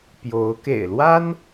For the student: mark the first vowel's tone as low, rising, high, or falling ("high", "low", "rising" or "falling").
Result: rising